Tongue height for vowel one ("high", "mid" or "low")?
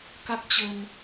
low